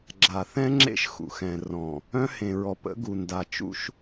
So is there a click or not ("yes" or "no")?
yes